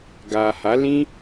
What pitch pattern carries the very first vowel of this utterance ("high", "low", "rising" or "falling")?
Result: low